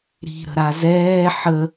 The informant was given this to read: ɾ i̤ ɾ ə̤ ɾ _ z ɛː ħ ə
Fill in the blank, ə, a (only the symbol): a